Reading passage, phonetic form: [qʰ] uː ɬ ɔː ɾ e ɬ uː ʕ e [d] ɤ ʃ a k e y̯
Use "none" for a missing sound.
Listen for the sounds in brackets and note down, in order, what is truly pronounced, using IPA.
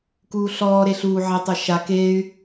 k, tˤ

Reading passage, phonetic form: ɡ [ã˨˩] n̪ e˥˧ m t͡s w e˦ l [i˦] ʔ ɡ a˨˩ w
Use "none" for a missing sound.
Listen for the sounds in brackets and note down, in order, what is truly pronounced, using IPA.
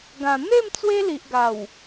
ã˨˩, i˨

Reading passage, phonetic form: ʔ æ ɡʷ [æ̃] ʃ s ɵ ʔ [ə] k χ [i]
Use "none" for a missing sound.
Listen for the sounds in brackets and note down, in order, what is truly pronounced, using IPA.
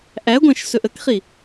æ̃, ə, i

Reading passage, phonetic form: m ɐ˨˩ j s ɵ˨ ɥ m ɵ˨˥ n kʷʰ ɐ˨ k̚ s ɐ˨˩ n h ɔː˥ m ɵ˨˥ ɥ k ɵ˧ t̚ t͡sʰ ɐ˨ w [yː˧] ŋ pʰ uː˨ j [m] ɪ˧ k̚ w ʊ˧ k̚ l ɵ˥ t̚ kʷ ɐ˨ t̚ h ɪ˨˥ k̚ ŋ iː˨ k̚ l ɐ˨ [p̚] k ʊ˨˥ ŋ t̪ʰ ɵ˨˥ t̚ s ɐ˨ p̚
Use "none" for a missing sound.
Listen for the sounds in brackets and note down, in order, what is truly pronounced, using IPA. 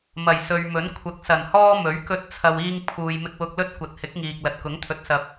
iː˧, m, t̚

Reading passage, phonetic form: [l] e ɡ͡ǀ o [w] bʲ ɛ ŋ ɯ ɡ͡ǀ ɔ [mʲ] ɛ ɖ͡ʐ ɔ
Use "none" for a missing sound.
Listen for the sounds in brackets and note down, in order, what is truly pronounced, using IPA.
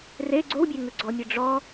r, w, mʲ

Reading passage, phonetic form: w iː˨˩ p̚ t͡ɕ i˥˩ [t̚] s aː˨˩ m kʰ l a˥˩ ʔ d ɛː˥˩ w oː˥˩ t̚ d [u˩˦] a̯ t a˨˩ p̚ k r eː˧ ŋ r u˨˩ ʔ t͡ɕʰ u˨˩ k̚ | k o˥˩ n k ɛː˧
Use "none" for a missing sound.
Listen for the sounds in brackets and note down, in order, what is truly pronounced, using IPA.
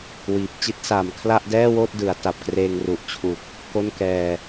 t̚, ɯ˩˦

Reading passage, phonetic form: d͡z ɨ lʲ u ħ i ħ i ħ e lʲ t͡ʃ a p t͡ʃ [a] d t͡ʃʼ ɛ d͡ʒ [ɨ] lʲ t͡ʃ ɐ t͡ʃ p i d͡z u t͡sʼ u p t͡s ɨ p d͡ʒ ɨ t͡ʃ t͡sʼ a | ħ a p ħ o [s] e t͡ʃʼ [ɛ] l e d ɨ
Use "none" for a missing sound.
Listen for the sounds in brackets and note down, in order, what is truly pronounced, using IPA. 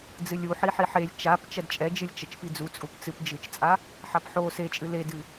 ɐ, ɨ, s, ɨ

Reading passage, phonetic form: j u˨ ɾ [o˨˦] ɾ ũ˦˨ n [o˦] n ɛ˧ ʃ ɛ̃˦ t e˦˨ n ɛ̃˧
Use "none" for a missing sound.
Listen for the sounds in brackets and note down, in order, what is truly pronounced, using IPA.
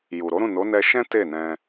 o˨˦, o˨˦

